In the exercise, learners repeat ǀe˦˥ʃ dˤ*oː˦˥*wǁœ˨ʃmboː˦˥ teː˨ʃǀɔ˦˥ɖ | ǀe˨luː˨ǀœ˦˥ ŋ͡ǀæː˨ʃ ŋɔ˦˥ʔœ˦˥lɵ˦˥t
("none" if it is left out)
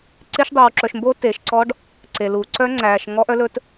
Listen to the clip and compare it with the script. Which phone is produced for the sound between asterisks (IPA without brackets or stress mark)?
oː˨